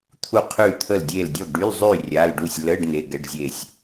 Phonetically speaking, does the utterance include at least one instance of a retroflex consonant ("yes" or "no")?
yes